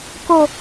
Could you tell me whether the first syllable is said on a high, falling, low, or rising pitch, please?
low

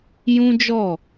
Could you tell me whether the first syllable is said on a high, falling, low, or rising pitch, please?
high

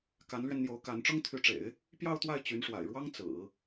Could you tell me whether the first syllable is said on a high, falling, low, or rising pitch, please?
rising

